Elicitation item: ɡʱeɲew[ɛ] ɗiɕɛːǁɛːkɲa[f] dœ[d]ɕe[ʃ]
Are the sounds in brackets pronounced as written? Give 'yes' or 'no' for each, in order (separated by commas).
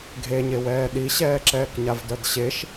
no, no, yes, yes